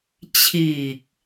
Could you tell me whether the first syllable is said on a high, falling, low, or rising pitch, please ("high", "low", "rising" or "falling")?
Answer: low